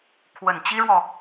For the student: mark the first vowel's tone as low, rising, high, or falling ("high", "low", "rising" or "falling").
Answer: low